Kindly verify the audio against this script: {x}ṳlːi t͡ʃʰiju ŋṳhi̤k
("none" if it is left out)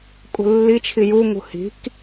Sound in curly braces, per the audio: kʼ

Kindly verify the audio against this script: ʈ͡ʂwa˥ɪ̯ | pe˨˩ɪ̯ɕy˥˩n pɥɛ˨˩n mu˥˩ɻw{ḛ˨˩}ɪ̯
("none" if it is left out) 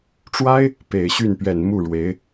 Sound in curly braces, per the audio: e˧˥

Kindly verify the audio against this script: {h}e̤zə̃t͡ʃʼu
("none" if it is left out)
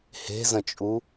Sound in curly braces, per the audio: h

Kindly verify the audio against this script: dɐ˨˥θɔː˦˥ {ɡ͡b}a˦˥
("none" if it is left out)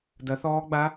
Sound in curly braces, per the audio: ɡ͡b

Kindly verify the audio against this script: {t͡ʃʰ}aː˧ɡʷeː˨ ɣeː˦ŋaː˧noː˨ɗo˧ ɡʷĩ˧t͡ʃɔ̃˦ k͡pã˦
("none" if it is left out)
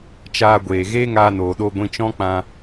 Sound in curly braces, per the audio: t͡ʃ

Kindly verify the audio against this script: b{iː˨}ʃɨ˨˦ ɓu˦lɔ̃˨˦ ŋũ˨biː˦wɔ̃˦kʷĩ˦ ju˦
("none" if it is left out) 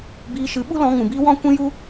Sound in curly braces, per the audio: iː˧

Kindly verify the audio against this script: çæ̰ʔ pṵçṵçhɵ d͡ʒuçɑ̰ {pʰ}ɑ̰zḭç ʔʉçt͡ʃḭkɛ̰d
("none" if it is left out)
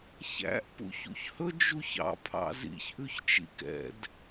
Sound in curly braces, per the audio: pʰ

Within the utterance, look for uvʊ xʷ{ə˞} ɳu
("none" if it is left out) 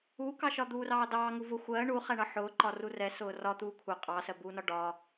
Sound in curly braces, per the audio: ɜ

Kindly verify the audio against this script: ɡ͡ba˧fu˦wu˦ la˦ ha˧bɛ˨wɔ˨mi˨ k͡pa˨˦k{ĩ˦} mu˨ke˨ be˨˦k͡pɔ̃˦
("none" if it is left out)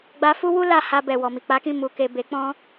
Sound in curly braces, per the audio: ĩ˦˨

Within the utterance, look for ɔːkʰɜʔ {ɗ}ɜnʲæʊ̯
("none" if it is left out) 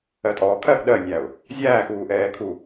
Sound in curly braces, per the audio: ɗ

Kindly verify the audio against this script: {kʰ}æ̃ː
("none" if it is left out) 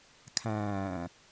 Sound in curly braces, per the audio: kʰ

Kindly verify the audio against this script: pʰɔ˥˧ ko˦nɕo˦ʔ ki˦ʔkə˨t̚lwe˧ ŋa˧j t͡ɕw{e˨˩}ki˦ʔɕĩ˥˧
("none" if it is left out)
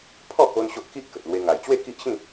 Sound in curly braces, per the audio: e˥˧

